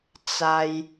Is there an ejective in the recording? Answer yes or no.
no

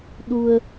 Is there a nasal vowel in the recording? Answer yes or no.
no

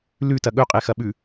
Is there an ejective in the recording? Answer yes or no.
yes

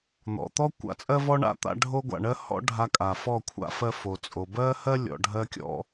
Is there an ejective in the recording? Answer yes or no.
yes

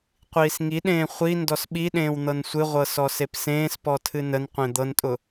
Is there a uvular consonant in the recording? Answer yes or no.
yes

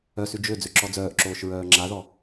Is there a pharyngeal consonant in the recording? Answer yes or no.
no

